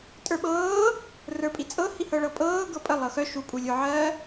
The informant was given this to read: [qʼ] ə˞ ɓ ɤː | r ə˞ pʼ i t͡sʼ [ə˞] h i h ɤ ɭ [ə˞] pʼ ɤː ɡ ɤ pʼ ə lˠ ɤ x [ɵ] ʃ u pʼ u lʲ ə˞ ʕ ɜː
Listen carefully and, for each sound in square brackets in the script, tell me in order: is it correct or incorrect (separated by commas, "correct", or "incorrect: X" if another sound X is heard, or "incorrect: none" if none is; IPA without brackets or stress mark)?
incorrect: tʼ, incorrect: ɤ, incorrect: ɤ, incorrect: œ